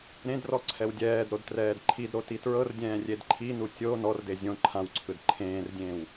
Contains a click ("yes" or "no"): yes